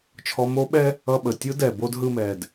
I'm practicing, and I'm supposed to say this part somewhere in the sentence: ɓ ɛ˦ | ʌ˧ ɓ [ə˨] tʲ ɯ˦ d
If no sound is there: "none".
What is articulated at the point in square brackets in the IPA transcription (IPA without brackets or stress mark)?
ə˨